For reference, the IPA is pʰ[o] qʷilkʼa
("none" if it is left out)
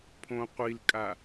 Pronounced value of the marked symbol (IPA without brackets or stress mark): õ